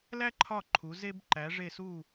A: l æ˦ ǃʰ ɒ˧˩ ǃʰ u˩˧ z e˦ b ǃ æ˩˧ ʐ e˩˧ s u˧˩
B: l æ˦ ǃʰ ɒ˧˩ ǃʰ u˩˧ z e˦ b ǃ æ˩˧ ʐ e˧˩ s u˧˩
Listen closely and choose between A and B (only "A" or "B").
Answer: B